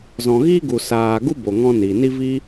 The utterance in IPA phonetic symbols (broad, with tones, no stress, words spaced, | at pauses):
zɔ̃˨ɣi˦ɡu˨ saː˨ɡu˦ bo˨ŋɔ̃˧ni˨ ni˦viː˦